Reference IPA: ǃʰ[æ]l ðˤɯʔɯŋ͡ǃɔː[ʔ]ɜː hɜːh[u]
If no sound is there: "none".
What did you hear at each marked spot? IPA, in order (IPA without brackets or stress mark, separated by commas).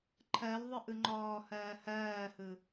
ɜ, h, ɯ